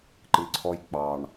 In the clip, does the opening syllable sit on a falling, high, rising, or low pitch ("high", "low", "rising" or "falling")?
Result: low